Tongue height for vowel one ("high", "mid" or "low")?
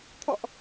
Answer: mid